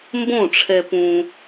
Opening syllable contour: falling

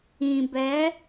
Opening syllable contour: low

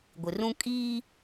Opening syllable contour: low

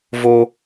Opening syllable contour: high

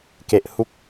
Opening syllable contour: low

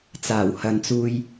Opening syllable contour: low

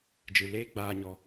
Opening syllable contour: low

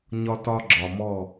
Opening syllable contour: high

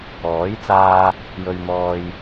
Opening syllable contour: rising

